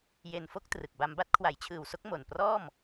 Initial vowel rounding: unrounded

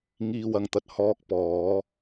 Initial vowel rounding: unrounded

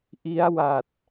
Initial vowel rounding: unrounded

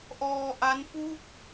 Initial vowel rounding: rounded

